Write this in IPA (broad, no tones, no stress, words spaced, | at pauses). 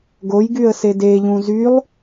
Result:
ɡojɡyə̯ sedeʎũ zylˠ